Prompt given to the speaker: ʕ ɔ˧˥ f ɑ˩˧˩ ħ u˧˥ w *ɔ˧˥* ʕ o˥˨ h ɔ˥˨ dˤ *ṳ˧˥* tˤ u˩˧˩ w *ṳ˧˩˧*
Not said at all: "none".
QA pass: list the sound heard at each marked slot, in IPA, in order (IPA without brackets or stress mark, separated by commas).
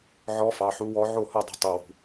ɔ˧˥, o̤˧˥, ṳ˧˩˧